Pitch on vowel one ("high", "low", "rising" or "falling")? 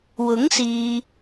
rising